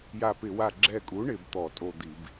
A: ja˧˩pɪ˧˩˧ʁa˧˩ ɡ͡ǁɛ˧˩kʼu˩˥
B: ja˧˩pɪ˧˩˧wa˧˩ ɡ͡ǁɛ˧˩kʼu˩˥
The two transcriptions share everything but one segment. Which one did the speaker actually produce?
B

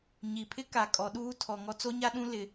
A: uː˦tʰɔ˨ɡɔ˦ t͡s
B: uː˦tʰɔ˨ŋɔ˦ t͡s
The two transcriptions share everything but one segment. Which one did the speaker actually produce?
B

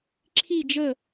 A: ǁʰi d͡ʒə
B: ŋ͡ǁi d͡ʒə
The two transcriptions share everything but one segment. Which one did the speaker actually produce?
A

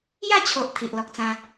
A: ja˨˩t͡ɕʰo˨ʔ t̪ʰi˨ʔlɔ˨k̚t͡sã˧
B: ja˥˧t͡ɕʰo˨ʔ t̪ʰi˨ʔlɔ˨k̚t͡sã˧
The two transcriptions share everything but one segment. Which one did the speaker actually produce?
B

